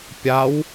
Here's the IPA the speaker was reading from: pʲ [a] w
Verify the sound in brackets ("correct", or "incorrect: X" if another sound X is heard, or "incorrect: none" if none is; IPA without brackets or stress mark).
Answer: correct